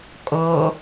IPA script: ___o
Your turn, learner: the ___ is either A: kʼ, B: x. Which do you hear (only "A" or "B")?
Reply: A